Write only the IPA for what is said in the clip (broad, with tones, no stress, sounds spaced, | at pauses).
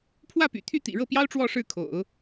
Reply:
pʰ w ä˥˩ p y̰˨˩ t̪ʰ y˥˩ t̪ ḭ˨˩ ɻ ɤ˥˩ p j ɑ˥ ʊ̯ ʈ͡ʂ w ɔ˥˧ ʂ ɻ̩˥˩ kʰ o̰˨˩˦ ʊ̯